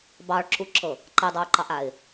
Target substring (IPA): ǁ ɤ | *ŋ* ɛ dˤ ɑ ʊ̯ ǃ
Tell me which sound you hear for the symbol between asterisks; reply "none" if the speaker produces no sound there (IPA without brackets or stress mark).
ǃ